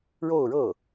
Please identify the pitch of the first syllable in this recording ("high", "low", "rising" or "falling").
falling